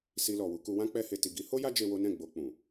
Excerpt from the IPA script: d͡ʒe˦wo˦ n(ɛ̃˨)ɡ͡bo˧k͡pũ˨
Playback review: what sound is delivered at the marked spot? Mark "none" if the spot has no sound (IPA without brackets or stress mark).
ɛ̃˦˨